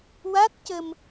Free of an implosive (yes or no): yes